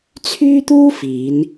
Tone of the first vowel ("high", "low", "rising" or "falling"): high